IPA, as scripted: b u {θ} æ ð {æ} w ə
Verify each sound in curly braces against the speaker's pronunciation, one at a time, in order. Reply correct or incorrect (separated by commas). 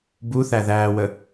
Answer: correct, incorrect